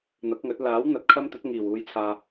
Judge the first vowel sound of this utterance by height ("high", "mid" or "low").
low